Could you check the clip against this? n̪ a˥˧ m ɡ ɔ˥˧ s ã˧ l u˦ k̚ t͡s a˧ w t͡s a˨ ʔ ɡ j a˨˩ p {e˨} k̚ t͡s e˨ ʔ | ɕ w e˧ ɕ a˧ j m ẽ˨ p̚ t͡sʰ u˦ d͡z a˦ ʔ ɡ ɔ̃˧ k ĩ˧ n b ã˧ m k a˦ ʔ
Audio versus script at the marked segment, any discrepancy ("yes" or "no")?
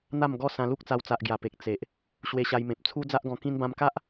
no